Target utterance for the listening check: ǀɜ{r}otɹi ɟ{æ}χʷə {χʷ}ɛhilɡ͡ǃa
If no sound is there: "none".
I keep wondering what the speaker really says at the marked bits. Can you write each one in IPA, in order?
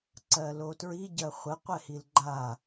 l, ɜ, qʷ

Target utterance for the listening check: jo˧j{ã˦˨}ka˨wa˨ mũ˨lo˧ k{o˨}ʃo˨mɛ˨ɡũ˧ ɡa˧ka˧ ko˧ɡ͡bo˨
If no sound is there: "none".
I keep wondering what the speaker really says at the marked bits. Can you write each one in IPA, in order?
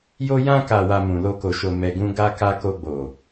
ã˧, o˨

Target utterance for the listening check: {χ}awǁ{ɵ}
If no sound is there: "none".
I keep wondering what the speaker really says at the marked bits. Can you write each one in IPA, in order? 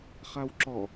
χ, ɔ

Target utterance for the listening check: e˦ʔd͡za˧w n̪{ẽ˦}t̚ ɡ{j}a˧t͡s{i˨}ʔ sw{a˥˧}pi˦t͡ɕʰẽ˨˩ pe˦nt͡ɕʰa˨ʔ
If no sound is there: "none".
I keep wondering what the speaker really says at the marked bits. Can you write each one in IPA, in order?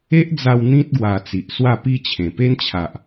ĩ˦, w, i˨, a˥˧

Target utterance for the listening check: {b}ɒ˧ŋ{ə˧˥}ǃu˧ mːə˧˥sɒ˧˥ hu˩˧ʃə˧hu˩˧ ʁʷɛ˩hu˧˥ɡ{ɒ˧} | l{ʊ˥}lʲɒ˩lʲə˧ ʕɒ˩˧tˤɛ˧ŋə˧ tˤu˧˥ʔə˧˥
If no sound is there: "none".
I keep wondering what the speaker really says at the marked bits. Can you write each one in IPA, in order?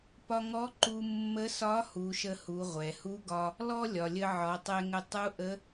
p, ɔ˧˥, ɒ˧, ɔ˥

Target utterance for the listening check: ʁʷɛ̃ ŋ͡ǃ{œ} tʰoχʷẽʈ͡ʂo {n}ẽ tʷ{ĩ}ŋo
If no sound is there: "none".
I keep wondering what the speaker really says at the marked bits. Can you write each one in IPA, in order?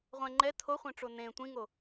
ɛ, n, ĩ

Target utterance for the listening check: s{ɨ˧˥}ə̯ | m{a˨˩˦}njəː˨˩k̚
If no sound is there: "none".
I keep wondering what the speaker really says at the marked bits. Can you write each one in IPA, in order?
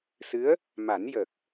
ɨ˧˥, a˨˩˦

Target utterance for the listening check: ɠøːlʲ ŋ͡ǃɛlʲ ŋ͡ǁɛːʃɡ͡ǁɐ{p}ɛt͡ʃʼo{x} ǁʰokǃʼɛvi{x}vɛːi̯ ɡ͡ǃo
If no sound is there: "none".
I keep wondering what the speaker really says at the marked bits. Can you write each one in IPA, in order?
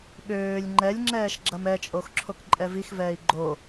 m, x, x

